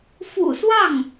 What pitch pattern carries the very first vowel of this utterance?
low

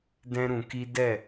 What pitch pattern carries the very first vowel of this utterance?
high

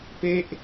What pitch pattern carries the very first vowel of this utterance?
falling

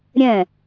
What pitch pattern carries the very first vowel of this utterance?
falling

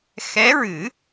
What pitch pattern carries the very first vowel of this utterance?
rising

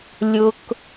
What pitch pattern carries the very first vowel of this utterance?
high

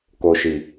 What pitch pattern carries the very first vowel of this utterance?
low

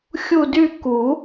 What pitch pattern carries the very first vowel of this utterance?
falling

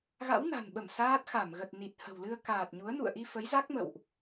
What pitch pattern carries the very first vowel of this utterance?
rising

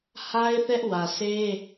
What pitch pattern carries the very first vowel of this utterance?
high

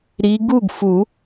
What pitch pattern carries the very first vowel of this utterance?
rising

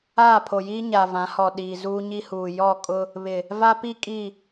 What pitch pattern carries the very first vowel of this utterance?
falling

